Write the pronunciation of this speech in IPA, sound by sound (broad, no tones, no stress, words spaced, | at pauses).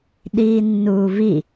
ɗiːnːuːvi